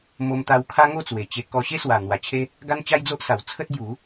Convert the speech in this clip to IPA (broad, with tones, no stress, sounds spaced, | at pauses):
m o˧ m t̪ a˧ w kʰ a˦ ŋ o˥˧ t͡s w e˨˩ t͡ɕ e˧ k ɔ˧ ɕ e˦ s w a˨˩ n̪ w a˨˩ t͡ɕʰ e˦ | ɡ a˦ n t͡ɕ a˦ j d͡z o˦ ʔ s a˨˩ w t͡sʰ ə˦ t̚ b j u˨˦